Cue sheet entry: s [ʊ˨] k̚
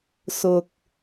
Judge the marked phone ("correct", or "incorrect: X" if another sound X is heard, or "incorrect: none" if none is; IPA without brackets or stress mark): correct